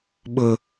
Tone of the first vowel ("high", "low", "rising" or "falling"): high